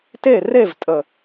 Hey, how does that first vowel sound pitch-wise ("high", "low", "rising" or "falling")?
falling